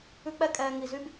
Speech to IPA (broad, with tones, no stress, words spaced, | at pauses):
ʉ˦k͡pɛ˦kʼɛː˧ ŋi˧zy˦b